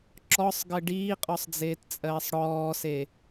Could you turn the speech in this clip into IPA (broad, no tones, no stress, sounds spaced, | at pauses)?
ǁ ɔ sˤ ɡ ɘ ɖ iː qʼ ɔ sˤ d͡z eː t t͡sʼ ɜː sˤ ɽ ɔː s e